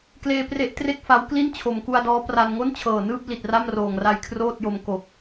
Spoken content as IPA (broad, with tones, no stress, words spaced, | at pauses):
kleː˧pre˦˥ʔtre˥˩k̚fa˦˥w kli˥˩nt͡ɕʰo˨˩mku˧a̯dɔː˦˥ pra˧n ŋo˥˩nt͡ɕʰɤː˨˩nɯː˥˩p̚ li˨˩t̚ra˥˩mroː˨˩ŋra˧j kʰroː˥˩t̚jo˧m ko˨˩k̚